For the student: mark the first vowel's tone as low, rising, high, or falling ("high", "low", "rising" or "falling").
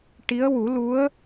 rising